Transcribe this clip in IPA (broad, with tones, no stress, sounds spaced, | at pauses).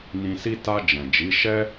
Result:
n ĩ˧ s i˦ t a˧ d͡ʒ ɛ̃˨ d͡ʒ i˨˦ ʃ ɛ˦